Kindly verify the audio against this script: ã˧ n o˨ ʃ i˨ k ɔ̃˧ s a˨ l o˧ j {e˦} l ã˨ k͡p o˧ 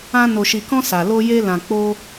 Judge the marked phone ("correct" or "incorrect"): incorrect